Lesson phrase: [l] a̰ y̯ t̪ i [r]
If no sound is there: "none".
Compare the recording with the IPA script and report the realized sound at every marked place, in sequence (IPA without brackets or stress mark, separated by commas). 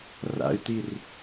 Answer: r, r